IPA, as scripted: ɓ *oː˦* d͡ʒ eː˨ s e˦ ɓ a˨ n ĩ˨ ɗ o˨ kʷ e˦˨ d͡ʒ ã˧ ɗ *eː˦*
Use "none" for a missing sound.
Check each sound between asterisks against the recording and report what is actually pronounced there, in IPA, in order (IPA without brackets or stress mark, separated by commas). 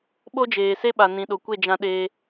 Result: o˦, eː˧